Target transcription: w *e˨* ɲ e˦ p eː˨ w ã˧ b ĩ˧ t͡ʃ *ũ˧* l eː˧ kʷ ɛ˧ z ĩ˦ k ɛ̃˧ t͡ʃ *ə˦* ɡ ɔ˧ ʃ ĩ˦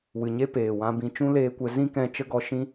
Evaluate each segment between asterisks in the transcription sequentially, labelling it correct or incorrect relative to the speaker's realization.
incorrect: ɨ˨, incorrect: ũ˦, correct

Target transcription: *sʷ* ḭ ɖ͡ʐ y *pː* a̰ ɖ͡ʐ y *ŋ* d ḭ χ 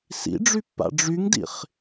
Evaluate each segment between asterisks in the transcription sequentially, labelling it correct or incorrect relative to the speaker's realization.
incorrect: s, correct, correct

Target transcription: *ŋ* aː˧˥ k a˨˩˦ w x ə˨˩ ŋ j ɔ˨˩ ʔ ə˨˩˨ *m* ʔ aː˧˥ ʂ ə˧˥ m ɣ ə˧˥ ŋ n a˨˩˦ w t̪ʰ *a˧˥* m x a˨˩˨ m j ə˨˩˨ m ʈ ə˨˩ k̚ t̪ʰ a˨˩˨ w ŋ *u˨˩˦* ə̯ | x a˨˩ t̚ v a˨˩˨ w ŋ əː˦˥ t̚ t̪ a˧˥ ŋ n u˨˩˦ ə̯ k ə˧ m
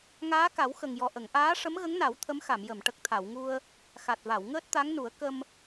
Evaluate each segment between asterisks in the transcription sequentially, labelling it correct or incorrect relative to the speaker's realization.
correct, incorrect: ŋ, incorrect: ə˧˥, incorrect: u˧

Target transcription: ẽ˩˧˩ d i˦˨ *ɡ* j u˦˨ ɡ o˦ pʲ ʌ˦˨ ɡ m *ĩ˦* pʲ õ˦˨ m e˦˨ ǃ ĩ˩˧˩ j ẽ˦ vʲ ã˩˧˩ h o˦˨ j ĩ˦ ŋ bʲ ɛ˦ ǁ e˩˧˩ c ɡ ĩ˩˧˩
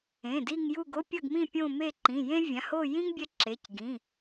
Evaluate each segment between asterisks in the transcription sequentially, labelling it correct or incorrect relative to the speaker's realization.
incorrect: ŋ, incorrect: ĩ˦˨

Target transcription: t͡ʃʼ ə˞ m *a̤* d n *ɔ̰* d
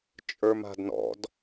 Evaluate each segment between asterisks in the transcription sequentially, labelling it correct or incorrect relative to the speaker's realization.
correct, correct

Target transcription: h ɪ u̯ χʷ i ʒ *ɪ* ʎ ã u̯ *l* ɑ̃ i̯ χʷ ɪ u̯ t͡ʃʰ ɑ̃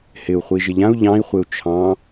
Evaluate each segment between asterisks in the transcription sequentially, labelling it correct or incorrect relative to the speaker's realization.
correct, incorrect: ʎ

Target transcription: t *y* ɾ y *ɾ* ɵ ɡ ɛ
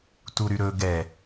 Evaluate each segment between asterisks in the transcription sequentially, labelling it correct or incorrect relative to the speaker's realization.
incorrect: u, correct

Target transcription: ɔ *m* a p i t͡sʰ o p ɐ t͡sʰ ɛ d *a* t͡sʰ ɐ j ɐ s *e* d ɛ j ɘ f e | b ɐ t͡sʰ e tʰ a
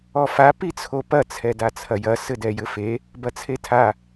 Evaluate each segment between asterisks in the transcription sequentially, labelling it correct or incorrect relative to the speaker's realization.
incorrect: f, correct, incorrect: ɘ

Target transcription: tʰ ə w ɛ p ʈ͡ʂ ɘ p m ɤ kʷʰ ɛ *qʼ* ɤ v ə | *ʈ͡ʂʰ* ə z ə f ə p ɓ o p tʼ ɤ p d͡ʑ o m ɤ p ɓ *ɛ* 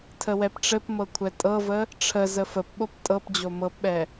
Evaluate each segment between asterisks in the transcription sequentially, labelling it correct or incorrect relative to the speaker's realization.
incorrect: tʼ, correct, correct

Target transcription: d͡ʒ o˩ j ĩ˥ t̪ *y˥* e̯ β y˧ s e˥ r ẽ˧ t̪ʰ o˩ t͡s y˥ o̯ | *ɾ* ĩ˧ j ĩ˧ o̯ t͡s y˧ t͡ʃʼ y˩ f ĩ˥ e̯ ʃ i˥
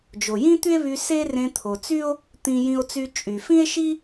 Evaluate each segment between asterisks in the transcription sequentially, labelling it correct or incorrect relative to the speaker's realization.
correct, incorrect: t̪

